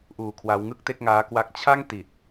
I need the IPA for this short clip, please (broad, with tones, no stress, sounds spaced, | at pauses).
ʔ uː˧ kʰ w a˦˥ w ŋ ɯ˥˩ k̚ t e˥˩ k̚ ŋ aː˦˥ k w a˦˥ k̚ t͡ɕʰ a˥˩ ŋ t i˨˩ t̚